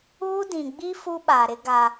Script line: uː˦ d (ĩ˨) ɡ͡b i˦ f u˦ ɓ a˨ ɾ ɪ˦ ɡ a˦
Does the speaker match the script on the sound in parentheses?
yes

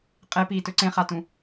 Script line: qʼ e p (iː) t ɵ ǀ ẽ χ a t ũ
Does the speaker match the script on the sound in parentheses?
yes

